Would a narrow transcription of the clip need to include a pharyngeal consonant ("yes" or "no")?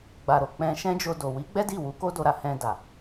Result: no